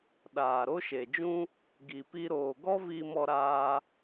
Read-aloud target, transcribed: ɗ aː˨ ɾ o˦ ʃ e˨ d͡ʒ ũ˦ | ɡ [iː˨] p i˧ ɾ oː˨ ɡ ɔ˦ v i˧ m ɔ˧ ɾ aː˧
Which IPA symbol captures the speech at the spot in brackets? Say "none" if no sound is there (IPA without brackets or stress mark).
i˨